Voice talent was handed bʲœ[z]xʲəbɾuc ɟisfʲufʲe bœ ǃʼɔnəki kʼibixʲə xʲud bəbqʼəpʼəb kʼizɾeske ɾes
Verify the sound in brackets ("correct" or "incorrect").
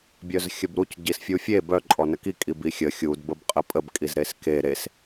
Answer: correct